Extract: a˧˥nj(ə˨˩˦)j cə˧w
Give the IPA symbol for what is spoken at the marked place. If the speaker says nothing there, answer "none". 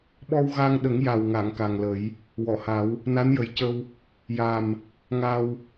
ə˨˩˦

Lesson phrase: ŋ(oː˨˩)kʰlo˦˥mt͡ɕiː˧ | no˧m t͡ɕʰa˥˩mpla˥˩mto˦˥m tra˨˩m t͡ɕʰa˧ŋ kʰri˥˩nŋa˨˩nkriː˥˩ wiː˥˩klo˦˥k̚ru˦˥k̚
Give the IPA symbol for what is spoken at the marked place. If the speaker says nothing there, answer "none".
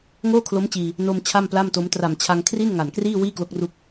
oː˥˩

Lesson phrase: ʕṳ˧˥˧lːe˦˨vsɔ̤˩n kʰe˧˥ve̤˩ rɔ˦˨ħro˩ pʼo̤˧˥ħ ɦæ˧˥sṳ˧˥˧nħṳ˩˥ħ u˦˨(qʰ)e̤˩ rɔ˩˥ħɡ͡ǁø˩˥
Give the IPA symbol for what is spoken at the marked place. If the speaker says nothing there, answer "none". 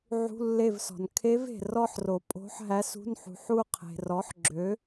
qʰ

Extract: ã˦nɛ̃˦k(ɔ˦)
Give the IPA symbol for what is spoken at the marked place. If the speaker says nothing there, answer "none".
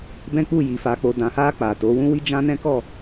ɔ˦˨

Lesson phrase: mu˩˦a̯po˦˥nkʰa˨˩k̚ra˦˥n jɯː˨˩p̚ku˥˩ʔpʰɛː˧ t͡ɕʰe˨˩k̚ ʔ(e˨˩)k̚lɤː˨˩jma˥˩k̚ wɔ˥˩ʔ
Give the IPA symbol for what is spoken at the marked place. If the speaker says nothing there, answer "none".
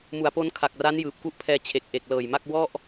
e˨˩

